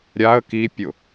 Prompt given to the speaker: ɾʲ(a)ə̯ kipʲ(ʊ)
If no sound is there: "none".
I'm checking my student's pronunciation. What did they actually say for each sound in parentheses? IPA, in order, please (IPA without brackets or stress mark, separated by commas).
a, ʊ